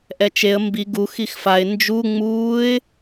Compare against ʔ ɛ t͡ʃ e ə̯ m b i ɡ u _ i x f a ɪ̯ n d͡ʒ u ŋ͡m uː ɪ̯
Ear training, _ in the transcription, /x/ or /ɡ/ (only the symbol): x